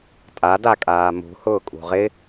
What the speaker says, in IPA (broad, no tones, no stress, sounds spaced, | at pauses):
tʼ a d a kʼ aː m ṳ h ʊː kʼ ṳ ʁ ɪ